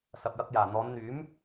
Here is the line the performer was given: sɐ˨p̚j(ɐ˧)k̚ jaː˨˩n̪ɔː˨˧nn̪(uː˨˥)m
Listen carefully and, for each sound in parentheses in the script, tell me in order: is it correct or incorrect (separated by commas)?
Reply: correct, incorrect